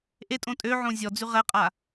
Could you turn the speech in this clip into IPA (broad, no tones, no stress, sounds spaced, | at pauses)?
ʔ e tʼ õ tʼ ø ʕ õ zʲ ɔ d͡z y ʁ ɛ qʼ a